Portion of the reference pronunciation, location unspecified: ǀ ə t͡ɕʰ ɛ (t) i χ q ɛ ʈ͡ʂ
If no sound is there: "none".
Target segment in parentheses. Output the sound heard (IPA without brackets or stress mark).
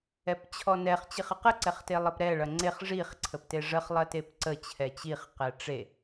t͡ɕ